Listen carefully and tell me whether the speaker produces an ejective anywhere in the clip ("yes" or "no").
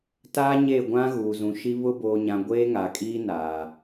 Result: yes